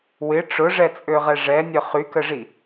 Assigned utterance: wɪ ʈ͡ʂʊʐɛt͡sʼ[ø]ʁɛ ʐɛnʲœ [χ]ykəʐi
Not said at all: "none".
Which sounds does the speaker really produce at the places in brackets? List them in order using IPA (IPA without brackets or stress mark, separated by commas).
ø, χ